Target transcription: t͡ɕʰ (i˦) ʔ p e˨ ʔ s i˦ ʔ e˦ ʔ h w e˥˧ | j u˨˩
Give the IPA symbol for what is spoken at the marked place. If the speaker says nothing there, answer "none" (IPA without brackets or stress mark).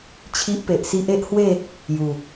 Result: i˦